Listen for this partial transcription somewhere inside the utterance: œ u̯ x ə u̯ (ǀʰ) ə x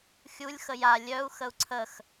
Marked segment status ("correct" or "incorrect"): correct